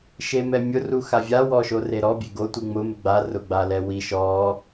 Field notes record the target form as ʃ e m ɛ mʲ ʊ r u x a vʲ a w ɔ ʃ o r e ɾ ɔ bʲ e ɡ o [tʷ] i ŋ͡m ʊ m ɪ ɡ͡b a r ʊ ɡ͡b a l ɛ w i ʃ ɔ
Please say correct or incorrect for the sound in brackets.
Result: correct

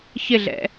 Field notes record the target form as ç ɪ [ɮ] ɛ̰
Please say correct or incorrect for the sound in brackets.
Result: correct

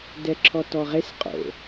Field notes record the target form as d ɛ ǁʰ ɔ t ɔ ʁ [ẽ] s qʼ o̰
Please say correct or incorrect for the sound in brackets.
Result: incorrect: e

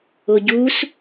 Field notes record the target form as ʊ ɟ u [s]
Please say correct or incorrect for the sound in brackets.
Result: correct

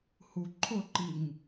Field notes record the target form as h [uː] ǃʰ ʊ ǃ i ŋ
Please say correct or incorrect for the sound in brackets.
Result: incorrect: u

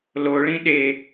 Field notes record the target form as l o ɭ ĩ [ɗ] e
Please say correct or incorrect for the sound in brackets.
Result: correct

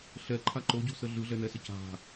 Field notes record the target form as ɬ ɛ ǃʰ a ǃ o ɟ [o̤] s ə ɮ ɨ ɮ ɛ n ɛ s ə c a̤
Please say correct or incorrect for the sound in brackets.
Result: correct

